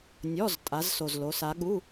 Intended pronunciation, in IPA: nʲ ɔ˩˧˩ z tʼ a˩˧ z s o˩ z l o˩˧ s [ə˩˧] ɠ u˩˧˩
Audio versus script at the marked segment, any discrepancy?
yes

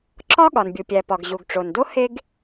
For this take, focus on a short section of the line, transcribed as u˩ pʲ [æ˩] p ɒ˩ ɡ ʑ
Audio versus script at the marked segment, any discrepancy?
no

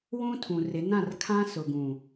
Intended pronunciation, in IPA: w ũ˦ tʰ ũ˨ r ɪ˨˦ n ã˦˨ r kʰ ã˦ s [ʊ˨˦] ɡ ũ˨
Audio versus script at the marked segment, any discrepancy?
yes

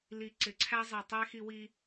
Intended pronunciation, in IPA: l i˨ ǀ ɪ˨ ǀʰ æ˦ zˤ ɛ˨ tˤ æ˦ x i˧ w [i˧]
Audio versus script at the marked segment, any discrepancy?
no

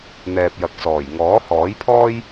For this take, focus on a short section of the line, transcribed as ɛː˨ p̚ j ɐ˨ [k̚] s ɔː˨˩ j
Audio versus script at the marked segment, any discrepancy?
no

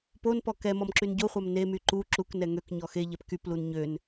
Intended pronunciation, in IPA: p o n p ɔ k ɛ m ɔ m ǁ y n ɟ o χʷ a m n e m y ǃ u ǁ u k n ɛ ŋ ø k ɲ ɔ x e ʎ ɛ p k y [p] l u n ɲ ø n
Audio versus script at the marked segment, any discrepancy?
no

